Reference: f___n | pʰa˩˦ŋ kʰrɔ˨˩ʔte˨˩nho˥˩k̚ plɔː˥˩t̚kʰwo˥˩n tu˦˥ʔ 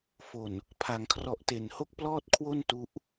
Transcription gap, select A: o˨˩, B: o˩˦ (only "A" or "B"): A